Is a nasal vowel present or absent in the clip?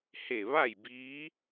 absent